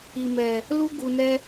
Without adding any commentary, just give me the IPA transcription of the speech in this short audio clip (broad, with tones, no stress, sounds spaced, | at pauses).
i˨ m ɛ˨ | l u˦ ɡ u˨ n ɛ˦